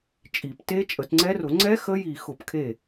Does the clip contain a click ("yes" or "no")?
yes